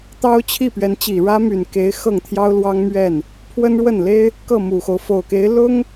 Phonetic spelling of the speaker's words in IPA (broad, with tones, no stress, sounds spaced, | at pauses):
t̪ ɑ˥ ʊ̯ t͡ɕʰ i˥˩ p ɥ ɛ˧˥ n t͡ɕ i˨˩ ɻ ä˥ m y˨˩ n k e˧˥ ɪ̯ x ɤ˥˩ ŋ t̪ʰ j ɑ˥ ʊ̯ l w ɑ˥ ŋ m ɥ ɛ˥˩ n | pʰ w ə˥ n ɻ w ə˥˩ n l e˥ ɪ̯ | k ɤ˥˩ m u˨˩ x o˦ ʊ̯ f o˨˩ ʊ̯ k e˧˥ ɪ̯ l ʊ˥ ŋ